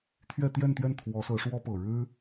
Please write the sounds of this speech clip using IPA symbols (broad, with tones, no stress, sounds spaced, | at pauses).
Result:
t̪ʰ ɥ ɛ˥˧ t̪ j ɛ˥˧ n t̪ ɥ ɛ˥˩ n t̪ʰ w ɔ˧˥ s ɤ˧˥ ʂ w ɔ˥ p ɤ˨˩ ɻ ɻ̩˥